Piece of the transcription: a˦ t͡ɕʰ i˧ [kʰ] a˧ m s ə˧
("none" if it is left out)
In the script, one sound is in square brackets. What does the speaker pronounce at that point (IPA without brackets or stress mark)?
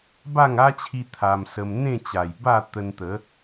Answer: t̪ʰ